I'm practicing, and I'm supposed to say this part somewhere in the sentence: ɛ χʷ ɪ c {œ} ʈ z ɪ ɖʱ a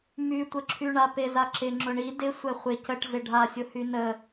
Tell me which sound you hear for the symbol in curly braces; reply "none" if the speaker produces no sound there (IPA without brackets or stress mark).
ə